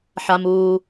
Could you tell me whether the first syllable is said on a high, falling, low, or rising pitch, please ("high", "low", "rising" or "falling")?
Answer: low